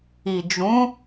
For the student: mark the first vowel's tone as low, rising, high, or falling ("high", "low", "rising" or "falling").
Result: low